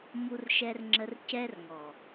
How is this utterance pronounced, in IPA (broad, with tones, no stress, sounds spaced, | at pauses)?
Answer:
m u˧ r ʃ ɛ˧ r ŋ͡ǁ ə˧ r c ɛ˦ r ŋ ɔ˨